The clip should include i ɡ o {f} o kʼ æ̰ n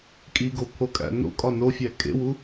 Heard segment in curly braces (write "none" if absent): pʰ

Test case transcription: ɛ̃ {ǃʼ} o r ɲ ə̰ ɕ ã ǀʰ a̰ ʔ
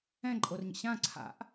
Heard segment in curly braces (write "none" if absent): ǃʼ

